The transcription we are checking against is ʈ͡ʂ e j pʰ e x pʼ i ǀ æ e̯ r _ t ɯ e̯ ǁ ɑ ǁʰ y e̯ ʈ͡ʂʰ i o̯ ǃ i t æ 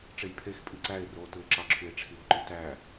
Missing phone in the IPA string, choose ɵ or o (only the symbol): o